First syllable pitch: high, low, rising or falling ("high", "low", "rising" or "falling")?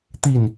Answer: low